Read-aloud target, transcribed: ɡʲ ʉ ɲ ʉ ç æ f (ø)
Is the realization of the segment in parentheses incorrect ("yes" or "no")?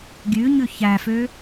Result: no